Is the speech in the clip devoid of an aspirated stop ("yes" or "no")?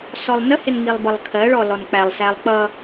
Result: no